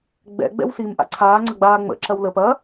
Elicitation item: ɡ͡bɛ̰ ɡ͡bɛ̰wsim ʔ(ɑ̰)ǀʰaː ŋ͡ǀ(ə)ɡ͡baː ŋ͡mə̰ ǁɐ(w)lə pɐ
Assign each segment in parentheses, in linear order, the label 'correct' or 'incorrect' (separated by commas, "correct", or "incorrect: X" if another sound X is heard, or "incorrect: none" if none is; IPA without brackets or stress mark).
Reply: incorrect: a̰, incorrect: ɐ, correct